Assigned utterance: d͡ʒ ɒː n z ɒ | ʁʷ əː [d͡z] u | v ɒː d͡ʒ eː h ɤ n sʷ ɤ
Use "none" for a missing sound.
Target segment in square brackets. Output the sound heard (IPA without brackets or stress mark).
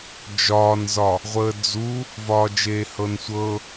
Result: d͡z